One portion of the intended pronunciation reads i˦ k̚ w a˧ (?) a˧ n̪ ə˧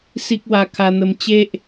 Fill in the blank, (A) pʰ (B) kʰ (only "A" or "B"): B